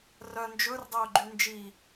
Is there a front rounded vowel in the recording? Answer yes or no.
yes